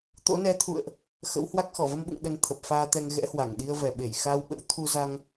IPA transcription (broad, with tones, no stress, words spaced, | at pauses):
t̪o̰˧˥nɛ˨˦t̪ʰṵ˧˨ə̯ʔ | xə̰˧˥whwa˦˥k̚ xɔ˧˩və˧mɓṵ˧˨ŋ ɗə˧nt̪ʰə˨˩p̚faː˧t̪ɛ˧ŋ ɣɛ̰˧˥hwa˧˩ŋɗi˧ə̯ vɛ˨˩ɓe˧˩j xa˧wɓə̰˧˥w t̪ʰu˧za˧ŋ